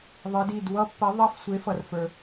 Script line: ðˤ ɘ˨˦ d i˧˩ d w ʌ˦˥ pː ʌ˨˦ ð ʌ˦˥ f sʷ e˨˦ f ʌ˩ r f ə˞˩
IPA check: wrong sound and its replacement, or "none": ð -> ðˤ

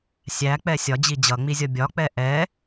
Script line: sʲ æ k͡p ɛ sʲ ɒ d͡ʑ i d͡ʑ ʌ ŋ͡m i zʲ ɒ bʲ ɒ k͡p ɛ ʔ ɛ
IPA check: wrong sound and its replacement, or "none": none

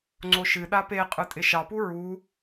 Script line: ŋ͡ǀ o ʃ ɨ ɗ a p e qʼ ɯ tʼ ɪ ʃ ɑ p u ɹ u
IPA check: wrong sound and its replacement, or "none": none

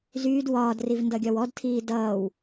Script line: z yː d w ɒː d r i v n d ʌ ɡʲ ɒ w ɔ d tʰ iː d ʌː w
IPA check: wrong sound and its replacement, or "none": none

